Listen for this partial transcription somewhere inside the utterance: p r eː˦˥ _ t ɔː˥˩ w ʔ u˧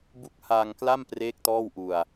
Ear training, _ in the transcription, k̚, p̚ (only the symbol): k̚